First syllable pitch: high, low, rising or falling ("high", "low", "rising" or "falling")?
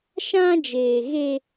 high